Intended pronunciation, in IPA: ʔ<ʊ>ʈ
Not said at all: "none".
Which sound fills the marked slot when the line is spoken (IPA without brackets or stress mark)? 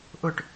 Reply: ʊ